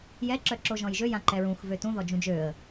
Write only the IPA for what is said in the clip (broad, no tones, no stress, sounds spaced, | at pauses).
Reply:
j ɛ ǁ œ ǁ o ʒ ɔ̃ j ʒ ø j ã ǃ ɛ ɹ ũ x v ø t ũ ð ɔ d͡ʒ ũ d͡ʒ ø ə̯